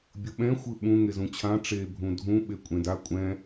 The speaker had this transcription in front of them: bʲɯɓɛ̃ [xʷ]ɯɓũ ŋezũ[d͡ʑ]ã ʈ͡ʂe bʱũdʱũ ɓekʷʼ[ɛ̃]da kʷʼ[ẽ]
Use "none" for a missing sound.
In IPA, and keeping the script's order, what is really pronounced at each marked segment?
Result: xʷ, t͡ɕʰ, ẽ, ɛ̃

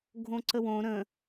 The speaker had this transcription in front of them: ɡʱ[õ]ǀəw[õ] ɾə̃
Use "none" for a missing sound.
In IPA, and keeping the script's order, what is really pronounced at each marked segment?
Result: õ, õ

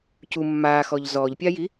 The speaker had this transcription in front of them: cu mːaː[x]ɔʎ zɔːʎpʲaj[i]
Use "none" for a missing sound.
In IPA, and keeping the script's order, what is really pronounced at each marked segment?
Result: x, i

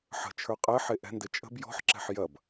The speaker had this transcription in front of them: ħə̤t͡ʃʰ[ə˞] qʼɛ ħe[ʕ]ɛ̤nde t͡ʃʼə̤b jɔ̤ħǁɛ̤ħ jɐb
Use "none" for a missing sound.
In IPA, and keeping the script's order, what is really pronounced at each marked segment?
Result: ə˞, ʔ

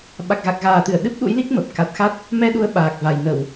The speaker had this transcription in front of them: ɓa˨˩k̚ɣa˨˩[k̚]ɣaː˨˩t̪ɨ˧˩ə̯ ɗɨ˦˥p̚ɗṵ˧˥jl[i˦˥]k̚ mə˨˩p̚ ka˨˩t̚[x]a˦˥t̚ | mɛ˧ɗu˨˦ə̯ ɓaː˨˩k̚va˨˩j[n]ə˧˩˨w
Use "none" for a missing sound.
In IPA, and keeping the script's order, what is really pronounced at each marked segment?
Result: k̚, i˦˥, x, n

